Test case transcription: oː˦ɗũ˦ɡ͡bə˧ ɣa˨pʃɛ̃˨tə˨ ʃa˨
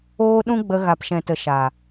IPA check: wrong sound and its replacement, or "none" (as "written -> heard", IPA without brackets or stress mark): none